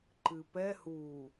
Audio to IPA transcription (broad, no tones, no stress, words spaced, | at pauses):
ǃɨpɛ hu